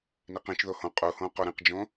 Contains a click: no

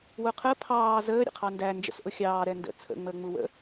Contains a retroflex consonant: no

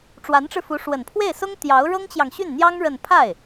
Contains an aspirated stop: yes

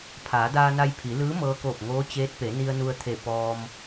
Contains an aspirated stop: yes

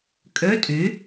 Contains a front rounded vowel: yes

